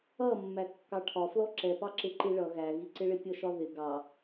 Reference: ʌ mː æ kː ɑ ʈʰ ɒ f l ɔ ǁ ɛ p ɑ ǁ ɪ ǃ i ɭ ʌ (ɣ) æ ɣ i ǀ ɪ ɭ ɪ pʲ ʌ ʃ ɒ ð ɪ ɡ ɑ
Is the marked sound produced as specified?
yes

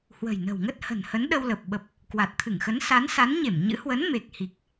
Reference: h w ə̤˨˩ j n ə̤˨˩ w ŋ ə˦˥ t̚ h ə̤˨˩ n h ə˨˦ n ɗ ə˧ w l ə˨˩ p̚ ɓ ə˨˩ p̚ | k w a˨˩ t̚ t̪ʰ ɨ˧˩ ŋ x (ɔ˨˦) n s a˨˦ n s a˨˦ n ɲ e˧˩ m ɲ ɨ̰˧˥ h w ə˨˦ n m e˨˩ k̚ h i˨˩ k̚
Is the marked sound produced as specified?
no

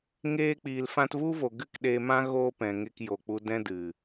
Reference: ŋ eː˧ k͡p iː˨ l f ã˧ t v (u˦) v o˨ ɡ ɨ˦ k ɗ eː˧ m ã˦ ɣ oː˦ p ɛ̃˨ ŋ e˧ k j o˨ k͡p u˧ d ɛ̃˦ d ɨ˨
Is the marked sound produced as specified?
yes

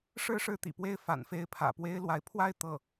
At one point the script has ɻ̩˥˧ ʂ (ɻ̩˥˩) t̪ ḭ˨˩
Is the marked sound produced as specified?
yes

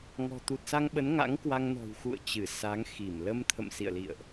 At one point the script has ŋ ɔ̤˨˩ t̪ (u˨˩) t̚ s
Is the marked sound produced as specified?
yes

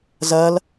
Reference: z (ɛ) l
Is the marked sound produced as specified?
no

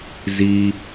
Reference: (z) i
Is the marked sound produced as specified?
yes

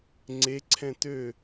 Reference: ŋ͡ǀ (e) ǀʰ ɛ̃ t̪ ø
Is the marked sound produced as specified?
yes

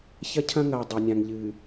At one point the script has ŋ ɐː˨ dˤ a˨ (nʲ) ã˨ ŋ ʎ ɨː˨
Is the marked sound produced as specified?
yes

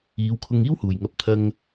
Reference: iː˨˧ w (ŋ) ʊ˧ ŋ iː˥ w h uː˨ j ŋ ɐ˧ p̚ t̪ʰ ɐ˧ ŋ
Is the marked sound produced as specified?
no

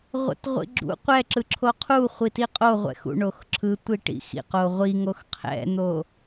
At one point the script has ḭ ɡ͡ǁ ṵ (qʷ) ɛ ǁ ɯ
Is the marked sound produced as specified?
yes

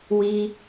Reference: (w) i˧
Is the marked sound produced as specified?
yes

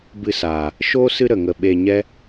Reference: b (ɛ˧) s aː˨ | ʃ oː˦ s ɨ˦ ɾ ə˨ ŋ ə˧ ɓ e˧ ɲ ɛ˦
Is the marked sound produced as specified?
no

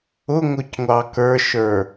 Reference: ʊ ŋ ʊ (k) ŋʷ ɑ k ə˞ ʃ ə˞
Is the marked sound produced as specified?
no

